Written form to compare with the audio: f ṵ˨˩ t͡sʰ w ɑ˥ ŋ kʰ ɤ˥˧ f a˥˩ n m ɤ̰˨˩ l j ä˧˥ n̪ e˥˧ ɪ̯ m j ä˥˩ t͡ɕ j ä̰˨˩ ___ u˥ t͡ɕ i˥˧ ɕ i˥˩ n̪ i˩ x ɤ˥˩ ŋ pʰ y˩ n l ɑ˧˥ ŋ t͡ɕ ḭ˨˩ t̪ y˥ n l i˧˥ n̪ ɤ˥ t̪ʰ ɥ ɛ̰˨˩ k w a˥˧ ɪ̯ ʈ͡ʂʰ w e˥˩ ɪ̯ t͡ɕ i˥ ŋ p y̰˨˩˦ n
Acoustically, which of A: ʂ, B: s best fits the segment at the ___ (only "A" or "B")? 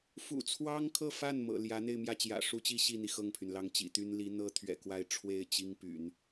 A